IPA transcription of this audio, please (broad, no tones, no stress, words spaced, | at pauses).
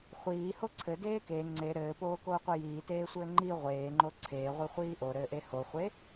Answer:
χʷiːho ǀʰɘdeː ke ŋ͡ǀe ɾɘːpoːkoːqʷɘ jiːteːsʷɘː ŋ͡ǃi ʁʷeːŋ͡ǃo ǀʰeːʁʷiχʷiː ʔoɾɘːʔe hoχʷe